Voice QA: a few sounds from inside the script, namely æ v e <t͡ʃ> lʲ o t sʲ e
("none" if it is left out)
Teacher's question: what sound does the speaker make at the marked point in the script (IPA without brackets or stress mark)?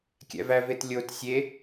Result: t